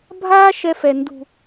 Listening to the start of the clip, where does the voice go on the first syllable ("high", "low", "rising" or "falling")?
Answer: high